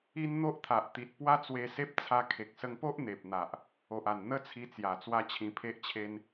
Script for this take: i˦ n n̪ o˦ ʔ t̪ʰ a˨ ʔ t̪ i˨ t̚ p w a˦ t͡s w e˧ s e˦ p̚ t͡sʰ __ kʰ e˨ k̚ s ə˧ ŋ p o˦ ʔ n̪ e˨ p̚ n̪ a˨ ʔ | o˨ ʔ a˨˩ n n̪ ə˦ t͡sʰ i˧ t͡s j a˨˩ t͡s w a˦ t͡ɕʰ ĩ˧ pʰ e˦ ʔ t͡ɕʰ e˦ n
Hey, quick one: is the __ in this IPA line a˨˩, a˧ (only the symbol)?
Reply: a˧